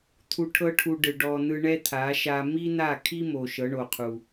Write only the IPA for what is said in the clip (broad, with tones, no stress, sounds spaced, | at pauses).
t̪ʰ u˧ ʈʰ ɤ˦ ʈʰ u˧ ɖ ɯ˨ ɖ ɔ˧ n̪ ɯ˧ ɳ ɛ˦ t̪ʰ a˨˦ ʃ a˦ m i˦ n̪ a˦˨ kʰ i˦ m o˨ ʃ ɤ˨˦ ɳ o˨ qʰ u˨